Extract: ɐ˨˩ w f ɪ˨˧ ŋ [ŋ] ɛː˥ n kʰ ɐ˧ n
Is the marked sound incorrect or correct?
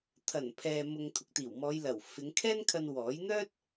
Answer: incorrect